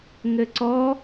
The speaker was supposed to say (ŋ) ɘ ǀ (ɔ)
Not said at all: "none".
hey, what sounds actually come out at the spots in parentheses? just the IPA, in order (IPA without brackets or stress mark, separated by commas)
ŋ, ɔ